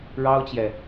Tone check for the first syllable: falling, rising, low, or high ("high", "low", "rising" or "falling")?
high